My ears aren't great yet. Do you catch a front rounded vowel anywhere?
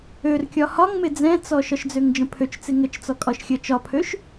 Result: yes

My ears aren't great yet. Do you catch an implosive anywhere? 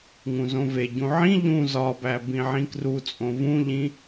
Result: no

